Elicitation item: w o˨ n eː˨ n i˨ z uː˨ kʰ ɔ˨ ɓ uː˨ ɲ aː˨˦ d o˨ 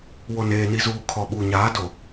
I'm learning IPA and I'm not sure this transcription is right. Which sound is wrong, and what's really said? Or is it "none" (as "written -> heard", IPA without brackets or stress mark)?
none